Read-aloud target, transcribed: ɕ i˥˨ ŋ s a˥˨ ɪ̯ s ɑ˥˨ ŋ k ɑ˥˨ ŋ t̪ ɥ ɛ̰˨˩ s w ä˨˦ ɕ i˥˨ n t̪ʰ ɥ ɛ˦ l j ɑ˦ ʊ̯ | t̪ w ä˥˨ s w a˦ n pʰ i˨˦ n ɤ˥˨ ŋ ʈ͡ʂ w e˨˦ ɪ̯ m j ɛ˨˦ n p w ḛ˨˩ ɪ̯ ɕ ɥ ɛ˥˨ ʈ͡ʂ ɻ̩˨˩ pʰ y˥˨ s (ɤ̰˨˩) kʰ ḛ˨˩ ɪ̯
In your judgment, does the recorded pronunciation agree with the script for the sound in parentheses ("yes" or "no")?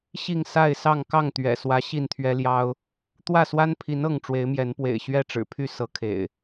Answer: no